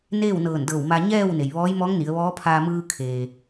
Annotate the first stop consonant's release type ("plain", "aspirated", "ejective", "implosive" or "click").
plain